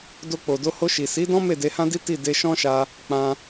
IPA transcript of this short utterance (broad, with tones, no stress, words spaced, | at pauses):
do˧k͡po˨do˧ho˧ ʃi˨si˨˦dɔ̃˦ me˦˨de˧hã˦di˦ ti˦˨ de˧ʃɔ̃˦ʃa˧ | k͡pã˧